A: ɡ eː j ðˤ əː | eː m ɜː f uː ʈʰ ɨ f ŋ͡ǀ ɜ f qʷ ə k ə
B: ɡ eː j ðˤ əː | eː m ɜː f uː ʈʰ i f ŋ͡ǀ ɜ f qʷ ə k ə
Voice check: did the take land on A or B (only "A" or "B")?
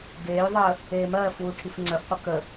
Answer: B